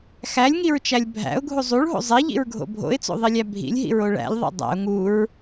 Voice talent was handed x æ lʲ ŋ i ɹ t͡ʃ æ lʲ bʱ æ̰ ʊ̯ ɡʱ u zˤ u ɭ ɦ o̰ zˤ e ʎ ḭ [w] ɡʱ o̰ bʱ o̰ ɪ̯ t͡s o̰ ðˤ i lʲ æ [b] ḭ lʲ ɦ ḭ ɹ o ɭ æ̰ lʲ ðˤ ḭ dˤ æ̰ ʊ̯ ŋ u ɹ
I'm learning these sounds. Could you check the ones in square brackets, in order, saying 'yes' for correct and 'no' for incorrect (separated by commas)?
no, no